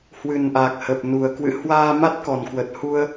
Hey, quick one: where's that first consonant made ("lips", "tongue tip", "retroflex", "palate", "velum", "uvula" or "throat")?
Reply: throat